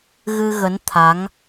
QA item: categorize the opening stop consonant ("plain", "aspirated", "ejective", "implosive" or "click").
aspirated